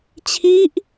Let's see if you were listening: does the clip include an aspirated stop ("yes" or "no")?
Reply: yes